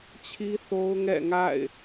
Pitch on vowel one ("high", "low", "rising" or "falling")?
high